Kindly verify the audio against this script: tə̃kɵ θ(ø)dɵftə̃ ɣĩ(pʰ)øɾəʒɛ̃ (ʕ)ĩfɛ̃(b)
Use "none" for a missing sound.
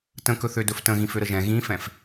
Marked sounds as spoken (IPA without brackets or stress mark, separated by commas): ø, f, ɣ, f